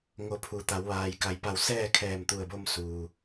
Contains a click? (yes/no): no